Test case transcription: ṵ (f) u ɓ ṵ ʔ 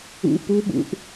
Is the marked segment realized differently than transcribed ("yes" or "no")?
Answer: yes